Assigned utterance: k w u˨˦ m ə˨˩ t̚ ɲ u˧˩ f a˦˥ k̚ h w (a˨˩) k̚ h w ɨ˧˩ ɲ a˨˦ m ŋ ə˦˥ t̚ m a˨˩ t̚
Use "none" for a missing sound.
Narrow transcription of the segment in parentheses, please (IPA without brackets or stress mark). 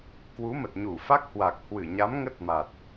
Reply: a˨˩